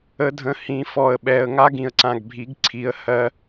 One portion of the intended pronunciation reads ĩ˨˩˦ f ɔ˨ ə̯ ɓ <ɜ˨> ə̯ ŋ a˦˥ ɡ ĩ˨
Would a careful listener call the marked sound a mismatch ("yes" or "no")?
yes